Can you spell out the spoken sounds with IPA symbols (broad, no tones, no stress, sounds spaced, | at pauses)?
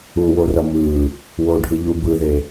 u w o r ʌ m ɯ | w o ɖʱ ɯ ʎ u b ɯ ð e